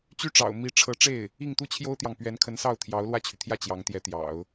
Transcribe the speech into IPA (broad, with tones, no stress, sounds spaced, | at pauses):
t͡ɕ y˥˩ ʈ͡ʂ ɑ̰˨˩ ʊ̯ m i˧˥ ʈ͡ʂʰ ɤ˧˥ ʈ͡ʂ e˥˩ ɪ̯ | i˥˩ ŋ t̪ u˥ t͡ɕʰ j o˥ ʊ̯ t̪ j ɑ˨ ŋ p ɥ ɛ˧˥ n kʰ ə˧˥ n s ɑ˥˩ ʊ̯ t̪ʰ j ɑ˧˥ ʊ̯ l w ä˥˩ t͡ɕʰ y˩ t̪ʰ j ä˥˩ t͡ɕ j ɑ˧˥ ŋ t̪ j ɛ˧˥ t̪ j ɑ̰˨˩˦ ʊ̯